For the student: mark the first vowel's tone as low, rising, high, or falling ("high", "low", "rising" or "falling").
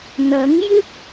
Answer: rising